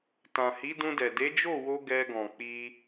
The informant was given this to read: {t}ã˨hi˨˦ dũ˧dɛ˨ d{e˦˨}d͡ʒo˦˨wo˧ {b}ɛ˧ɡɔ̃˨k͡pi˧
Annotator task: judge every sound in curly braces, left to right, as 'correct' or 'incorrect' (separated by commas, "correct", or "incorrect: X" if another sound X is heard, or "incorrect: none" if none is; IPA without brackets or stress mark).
correct, incorrect: e˨˦, incorrect: ɡ